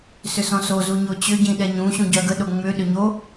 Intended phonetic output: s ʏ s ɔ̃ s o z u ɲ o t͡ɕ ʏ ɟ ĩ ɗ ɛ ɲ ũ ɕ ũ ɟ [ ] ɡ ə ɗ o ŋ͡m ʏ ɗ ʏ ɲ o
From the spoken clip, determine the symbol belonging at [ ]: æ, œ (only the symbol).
œ